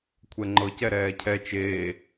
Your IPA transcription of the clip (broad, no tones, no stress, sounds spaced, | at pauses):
kʷʰ ɛ ŋ͡ǃ ɤ c ɛ ɾ ɛː cʰ ɛ t͡ʃ eː